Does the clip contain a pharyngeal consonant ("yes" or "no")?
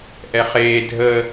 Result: no